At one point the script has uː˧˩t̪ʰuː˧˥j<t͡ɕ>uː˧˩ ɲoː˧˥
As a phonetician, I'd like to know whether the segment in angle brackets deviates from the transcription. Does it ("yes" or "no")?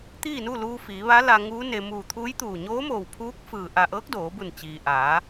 yes